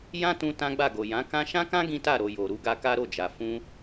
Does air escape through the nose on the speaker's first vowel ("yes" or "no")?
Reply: yes